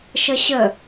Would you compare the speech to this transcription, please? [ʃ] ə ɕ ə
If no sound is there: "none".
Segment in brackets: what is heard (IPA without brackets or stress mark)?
ʃ